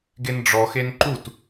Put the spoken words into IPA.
ɡenɖ͡ʐɔxen ǃut

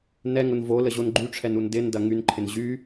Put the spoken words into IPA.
nɛŋʊn voləʑon ɡ͡ǃyʈ͡ʂʰɛnun dɪndɐ ŋynǃʰɪn ʑy

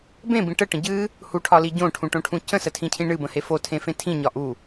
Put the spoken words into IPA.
bẽbĩ ʈəʈə̃ ɟɨ | huʈʰɒli ɟõʈʰũʈõʈʰũ cə̃sətʰĩcʰĩ ɳɨbə̃he fotʰẽfẽ tʰĩɲɒ ʔu

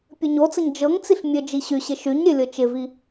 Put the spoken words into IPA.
pʲɘɲot͡səɲ d͡ʒɤŋt͡siɬ mʲɘ d͡ʒiɕyɕɪ ʃyɲɾʲɘ lʲɤt͡ʃɪvi

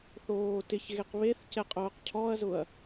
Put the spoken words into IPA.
θoːtɪç ɣeqβeθcɛqʼʊːq cʰɔɐ̯zʊɐ̯

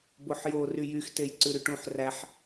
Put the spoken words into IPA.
boħjo ryjyx tejǀʉɾyʈũħ ræħ

